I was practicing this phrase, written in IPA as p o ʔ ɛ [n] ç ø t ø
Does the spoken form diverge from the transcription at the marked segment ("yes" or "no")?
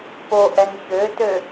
no